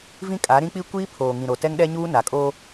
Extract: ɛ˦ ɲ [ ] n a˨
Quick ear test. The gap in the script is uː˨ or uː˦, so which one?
uː˦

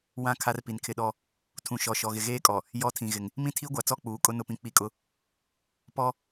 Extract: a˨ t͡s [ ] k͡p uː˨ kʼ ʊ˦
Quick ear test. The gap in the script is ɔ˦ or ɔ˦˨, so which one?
ɔ˦˨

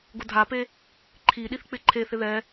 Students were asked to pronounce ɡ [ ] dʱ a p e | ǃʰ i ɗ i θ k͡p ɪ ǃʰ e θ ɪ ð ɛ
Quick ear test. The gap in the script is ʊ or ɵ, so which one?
ʊ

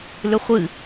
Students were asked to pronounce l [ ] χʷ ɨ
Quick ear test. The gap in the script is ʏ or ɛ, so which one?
ʏ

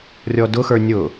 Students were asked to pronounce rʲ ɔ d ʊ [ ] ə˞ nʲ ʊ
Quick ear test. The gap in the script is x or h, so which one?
x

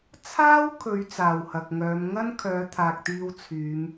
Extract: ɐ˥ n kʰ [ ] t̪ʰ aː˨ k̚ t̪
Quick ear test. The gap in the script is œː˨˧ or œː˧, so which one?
œː˨˧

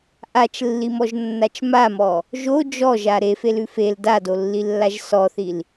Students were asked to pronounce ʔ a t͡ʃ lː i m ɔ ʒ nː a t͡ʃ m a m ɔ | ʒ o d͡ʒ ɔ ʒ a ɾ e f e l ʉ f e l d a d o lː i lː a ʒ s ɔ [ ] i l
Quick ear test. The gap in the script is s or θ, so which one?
θ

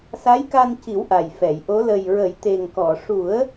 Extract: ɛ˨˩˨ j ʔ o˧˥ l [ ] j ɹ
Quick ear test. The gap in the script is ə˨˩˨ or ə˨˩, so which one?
ə˨˩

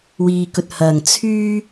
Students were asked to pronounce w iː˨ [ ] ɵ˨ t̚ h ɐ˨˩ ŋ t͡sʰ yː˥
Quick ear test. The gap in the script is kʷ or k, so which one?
k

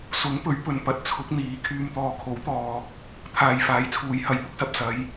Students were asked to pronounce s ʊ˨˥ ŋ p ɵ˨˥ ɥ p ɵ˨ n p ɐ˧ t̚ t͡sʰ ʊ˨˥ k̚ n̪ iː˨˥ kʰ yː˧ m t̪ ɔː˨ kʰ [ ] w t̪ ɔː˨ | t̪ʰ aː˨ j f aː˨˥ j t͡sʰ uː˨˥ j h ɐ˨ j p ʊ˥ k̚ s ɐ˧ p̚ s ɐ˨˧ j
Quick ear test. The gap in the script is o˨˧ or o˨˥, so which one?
o˨˥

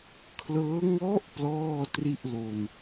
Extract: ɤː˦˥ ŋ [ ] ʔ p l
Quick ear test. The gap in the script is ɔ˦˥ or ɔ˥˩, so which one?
ɔ˦˥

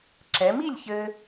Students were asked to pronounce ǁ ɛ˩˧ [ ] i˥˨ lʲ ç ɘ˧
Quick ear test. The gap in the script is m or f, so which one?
m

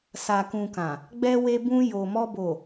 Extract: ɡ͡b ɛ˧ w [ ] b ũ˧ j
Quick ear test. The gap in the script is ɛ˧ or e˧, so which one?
e˧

